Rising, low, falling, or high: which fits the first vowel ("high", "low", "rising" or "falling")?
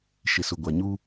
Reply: low